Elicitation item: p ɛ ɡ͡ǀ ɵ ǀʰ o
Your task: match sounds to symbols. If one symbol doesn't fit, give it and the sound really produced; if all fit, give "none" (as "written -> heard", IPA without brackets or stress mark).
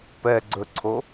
none